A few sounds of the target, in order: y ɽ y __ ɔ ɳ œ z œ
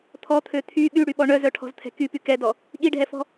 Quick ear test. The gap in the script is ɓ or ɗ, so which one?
ɓ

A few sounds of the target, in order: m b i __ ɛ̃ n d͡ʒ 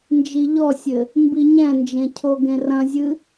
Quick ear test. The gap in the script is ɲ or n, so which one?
ɲ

